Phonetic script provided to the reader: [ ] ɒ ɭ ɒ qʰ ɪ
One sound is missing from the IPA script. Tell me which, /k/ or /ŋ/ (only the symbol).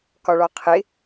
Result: k